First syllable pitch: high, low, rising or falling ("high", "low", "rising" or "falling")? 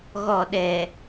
falling